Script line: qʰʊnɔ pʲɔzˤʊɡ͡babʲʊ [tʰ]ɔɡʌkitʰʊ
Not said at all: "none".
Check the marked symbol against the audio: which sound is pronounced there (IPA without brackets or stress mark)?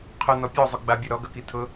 ɾ